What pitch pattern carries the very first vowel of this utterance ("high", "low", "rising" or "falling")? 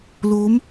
rising